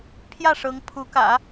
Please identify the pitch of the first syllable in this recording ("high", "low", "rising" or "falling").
falling